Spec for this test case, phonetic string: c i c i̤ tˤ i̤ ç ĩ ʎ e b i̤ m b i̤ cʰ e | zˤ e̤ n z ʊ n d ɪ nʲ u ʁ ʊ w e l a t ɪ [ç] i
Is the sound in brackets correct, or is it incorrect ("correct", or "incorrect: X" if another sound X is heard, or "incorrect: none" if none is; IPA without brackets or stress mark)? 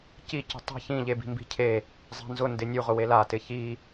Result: correct